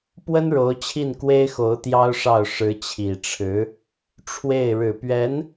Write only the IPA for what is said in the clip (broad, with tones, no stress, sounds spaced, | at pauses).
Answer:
p w ə˥ n ɻ o˧˥ ʊ̯ t͡ɕʰ i˥˩ n k w e˥ ɪ̯ x o˧˥ ʊ̯ t̪ j ɑ˥ ʊ̯ ʂ ɑ˥˩ ʊ̯ ʂ ɻ̩˧˥ t͡ɕʰ i˨˩ ʈ͡ʂʰ ɻ̩˧˥ | ʈ͡ʂʰ w e˥˩ ɪ̯ ɻ ɻ̩˨˩ p ɥ ɛ˧˥ n